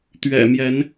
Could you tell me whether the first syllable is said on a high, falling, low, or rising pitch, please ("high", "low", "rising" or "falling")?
low